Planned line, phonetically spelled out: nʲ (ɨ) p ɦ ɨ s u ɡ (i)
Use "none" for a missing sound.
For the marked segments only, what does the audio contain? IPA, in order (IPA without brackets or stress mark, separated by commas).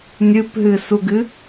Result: ɨ, ɨ